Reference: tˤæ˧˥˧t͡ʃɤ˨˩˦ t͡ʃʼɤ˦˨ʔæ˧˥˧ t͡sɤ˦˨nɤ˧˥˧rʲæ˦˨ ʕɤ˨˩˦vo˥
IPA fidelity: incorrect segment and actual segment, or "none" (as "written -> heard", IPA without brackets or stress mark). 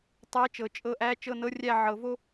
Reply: t͡s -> t͡ʃ